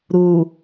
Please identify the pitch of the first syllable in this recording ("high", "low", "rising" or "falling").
low